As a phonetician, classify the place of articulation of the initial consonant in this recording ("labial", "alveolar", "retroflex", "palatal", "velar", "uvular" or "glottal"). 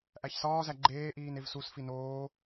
glottal